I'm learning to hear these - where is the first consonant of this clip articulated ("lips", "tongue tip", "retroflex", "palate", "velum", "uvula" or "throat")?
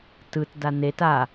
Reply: tongue tip